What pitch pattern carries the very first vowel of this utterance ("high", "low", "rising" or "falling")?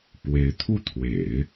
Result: rising